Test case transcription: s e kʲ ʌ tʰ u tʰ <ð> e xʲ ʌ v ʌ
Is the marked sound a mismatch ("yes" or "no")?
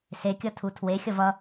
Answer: yes